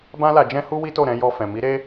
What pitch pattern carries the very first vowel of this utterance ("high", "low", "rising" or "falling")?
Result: high